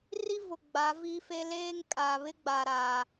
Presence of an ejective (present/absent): present